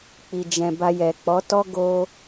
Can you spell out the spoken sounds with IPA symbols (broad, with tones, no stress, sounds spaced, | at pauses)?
k͡p i˧ d͡ʒ ɛ̃˧ b a˧ j ɛ˨ k͡p ɔ˨˦ t ɔ˦ ɡ o˦